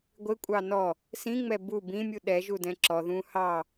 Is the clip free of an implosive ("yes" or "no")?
no